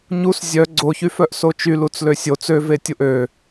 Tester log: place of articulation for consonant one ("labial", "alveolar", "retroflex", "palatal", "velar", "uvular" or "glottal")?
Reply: palatal